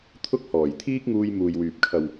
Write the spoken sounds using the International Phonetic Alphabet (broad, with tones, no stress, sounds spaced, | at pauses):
t̪ʰ ʊ˥ k̚ h ɔː˨˩ j t̪ʰ iː˥ k̚ ŋ uː˧ j m uː˨ j w yː˨ p̚ kʰ ɐ˨ w